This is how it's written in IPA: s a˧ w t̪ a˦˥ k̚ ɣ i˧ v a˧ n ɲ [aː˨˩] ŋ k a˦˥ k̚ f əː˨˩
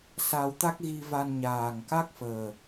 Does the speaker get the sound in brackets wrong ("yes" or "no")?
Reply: no